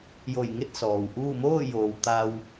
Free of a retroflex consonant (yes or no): yes